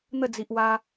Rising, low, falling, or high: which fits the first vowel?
falling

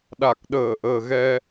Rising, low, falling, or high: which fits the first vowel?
low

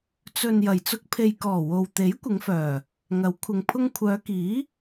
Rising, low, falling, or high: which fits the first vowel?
low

